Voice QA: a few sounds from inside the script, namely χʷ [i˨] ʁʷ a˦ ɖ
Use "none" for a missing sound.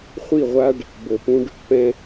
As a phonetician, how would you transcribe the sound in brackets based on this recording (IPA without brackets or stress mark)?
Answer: i˦˨